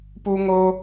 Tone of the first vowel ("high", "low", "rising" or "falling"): high